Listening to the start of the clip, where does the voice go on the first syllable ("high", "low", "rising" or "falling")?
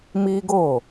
high